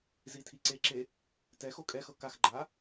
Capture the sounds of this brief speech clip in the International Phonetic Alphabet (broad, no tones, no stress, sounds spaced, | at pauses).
z i tʰ i ǀ e ǁ e | t ɛ x o kʼ ɛ x ɤ k a x ɡ͡ǃ a